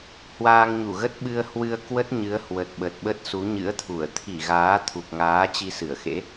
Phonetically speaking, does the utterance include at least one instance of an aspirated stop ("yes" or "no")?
yes